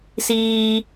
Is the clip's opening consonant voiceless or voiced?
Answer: voiceless